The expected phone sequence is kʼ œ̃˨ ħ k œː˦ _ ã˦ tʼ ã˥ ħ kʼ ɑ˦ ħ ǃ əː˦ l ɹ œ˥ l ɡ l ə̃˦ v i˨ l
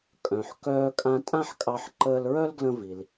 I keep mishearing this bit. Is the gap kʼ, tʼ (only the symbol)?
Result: kʼ